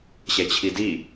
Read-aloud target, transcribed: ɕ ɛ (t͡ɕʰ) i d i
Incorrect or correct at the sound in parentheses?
correct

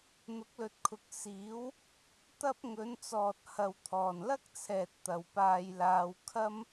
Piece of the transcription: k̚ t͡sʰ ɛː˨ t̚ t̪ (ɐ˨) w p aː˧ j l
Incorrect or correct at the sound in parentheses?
correct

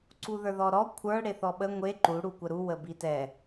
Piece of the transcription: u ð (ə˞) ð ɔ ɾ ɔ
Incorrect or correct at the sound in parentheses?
correct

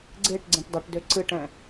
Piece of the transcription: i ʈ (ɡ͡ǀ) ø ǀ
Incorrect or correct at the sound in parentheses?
incorrect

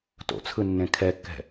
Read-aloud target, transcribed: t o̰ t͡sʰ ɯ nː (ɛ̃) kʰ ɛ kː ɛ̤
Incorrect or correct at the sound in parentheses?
incorrect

